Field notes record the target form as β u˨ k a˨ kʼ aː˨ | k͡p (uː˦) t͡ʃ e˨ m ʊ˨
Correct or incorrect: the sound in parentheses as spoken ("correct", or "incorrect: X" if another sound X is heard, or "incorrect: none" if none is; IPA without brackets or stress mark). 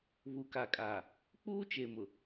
correct